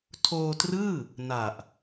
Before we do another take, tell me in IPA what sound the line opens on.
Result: tʰ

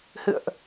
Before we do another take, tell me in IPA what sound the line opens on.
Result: h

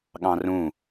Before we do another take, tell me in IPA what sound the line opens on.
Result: ɠ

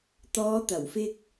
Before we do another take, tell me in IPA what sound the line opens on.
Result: t̪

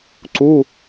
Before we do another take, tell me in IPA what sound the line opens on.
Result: ǀ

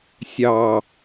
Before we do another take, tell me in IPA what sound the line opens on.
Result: sʲ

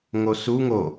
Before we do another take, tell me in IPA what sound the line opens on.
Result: ŋ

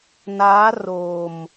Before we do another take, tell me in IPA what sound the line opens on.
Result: n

